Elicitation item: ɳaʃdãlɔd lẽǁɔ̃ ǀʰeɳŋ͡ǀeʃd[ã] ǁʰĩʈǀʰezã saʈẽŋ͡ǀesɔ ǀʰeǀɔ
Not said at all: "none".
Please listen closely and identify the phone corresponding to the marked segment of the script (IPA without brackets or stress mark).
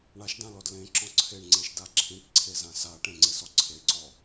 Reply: a